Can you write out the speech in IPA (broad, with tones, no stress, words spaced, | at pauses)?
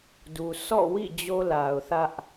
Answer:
du˨ sʰɔ̰˦˨wḭ˦˨ d͡ʑo˦la˨ʊ̯ θä˦ʔ